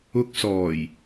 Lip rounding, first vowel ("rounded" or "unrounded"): rounded